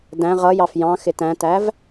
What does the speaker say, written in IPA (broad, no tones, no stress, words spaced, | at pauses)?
dæ̃ ʁʌ jɑfjɑ̃ xɪtæ̃tæv